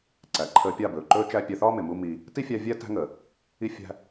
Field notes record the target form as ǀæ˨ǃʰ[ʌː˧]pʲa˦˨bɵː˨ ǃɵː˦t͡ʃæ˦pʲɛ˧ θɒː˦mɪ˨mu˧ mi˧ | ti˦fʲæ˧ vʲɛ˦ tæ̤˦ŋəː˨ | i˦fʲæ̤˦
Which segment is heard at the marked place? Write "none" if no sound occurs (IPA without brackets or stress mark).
əː˧